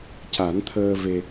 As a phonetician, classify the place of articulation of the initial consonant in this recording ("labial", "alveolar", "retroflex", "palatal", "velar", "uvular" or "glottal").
palatal